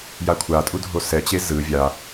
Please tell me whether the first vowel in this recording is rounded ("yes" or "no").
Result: no